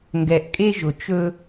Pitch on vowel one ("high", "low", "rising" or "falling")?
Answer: low